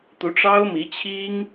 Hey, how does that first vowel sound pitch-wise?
rising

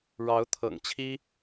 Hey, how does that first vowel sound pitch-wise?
rising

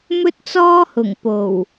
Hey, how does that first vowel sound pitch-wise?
high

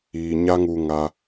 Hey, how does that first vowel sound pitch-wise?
low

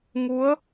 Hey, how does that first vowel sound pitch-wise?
rising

